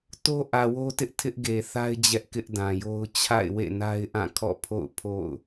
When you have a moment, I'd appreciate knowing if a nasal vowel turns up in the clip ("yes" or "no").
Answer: yes